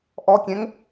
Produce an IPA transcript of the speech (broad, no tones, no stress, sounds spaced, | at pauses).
ʔ ɔ kʲ ɛ̃ ŋ